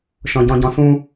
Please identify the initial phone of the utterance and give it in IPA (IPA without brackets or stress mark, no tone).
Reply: ʃ